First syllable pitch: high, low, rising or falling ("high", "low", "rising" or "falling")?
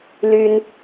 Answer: high